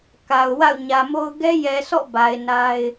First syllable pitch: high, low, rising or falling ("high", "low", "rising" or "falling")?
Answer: low